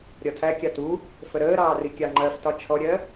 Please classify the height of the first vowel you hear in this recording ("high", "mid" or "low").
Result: low